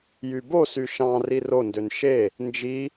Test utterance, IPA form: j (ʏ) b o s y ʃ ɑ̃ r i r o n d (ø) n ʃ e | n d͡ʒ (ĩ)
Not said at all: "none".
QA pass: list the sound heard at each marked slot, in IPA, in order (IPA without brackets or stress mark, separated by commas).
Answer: y, ø, i